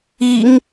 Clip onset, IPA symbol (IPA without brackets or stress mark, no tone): i